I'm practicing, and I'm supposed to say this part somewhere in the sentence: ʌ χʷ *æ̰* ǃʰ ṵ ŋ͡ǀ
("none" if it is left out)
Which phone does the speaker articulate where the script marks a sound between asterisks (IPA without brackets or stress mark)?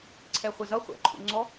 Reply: æ̰